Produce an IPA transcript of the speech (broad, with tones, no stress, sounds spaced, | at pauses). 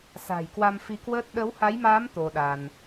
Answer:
s a̤˨˩ j k w a˧ m f i˧ k w əː˦˥ t̚ ɗ ə˨˦ w h a˨˦ j m aː˨˦ m t̪ o˧ ɗ a˧ n